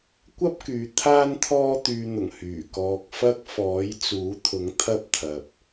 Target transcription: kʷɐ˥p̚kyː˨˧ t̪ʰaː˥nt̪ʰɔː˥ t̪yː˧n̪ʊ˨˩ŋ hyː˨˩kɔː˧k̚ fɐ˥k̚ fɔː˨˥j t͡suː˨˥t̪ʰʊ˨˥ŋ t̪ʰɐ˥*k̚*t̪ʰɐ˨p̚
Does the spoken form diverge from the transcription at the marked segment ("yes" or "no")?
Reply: yes